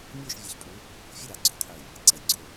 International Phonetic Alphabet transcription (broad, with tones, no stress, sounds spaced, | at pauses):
mʲ ɵː˥˧ ʃ vʲ e˨˦ ç pʼ u˨˦ | fʲ ɨ˥˧ ɾ a˨˩˦ ɡ͡ǀ ɵː˨˦ qʰ ɵ˧˩ j | ǀ ɐ˨˩˦ j ɡ͡ǀ ɵ˧˩